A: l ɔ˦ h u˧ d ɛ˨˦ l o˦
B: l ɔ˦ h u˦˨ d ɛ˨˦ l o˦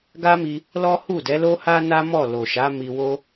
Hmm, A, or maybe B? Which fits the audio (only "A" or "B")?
B